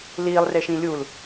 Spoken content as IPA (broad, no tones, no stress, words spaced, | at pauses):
liːlˠreʃĩ lʲul